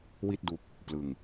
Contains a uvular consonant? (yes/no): no